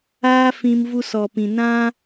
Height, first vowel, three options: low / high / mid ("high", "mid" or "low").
low